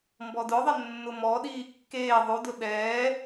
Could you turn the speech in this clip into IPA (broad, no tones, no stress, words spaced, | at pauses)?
mbɔdʊðˤɪ nːʊmɔɗiː kːeː ðˤudʊ ɗɛː